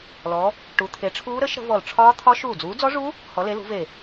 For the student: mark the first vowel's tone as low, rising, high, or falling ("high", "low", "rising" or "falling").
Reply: rising